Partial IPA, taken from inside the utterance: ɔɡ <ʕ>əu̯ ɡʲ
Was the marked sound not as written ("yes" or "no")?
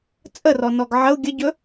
no